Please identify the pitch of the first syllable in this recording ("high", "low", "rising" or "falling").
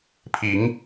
rising